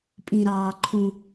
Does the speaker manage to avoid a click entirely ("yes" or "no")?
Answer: no